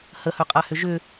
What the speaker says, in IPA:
h ə h œ qʼ a h ʏ ʒ ʏ

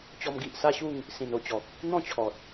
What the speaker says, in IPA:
t͡ɕ ɔ˧ m ɡ i˨ ʔ s a˥˧ ɕ u˥˧ ŋ | s ĩ˨˩ n o˥˧ t͡ɕ ɔ˨ k̚ | n̪ ɔ̃˥˧ t͡ɕʰ ɔ˨ t̚

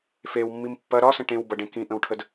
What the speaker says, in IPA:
f e w mː i m pː ɐ ɾ ɒ s ə̃ ʈ ẽ w b ɐ ɖ ẽ k ĩ ʔ ə̃ w ʈʰ ə d

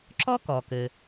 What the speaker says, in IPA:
ǁ ɔ˥ k ɔ˩ k ɘ˩

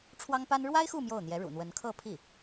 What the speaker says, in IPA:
ʈ͡ʂʰ w ɑ˥ ŋ p a˥ n ɻ w a˥ ɪ̯ x u˥˧ m j o˥˩ ʊ̯ n̪ j ɛ˧˥ ɻ ṵ˨˩ n̪ w ə˧˥ n kʰ ɤ˥˧ pʰ i˥˩

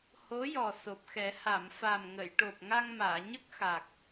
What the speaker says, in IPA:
h o˧˥ j ɔ˨˩ s o˨˩ p̚ x ɛ˨˩˦ h a˨˩˨ m f a˨˩ m ŋ ə˨˩˨ j ʈ o˨˩ p̚ ŋ a˧ ŋ m aː˨˩˨ ɲ ə˦˥ k̚ x a˨˩ k̚

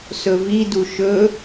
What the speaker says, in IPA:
s ɵ v i d u ʃ ɵ

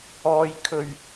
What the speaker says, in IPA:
ɔː˧ j kʰ ɵ˨ ɥ

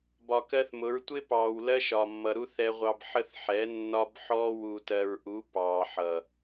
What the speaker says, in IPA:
b ɒ˨ k ɜ˦ θ m ʊ˨˦ ɹ tʷ ɪ˦ p ɑː˨ w l ɜ˦ ʃ ɒ˨ mː ʌ˨ ɾ u˦ θ ɛ˨ ʁʷ ɑ˨ b ħ ə˦ θ ħ ɛ˨˦ nː ɒ˦ b ħ ɔː˦ w u˨ t ɜ˨ ɹ ʔ u˨˦ p ɑː˨ ħ ʌ˨

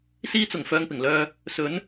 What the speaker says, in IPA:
s iː˧ t͡s ʊ˨˩ ŋ f œː˧ ŋ p ɪ˨˩ ŋ l œː˧ | s ɵ˨˧ n

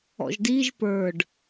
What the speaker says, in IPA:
ɔ̰ ʒ d i ʒ p ə˞ ɖ

